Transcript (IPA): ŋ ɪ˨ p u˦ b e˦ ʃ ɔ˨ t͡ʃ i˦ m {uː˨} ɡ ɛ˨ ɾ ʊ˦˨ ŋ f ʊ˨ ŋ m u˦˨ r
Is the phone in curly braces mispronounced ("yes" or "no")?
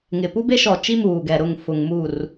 no